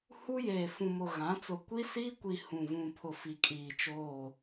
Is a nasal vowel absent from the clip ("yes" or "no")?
no